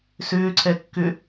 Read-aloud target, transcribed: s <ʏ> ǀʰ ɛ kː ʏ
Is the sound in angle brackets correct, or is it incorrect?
incorrect